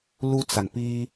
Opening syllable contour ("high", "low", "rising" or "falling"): high